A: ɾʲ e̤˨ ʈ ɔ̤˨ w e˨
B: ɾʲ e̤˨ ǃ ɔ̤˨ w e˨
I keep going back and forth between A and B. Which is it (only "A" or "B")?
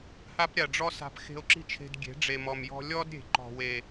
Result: B